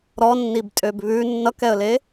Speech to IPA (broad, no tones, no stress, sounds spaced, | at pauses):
ɾ ɔ nː i b tʼ ø b β ʉ nː ʌ k ɛ ə̯ l e